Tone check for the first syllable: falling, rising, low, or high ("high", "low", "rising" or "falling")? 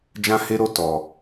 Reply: high